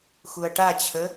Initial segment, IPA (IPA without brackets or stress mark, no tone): x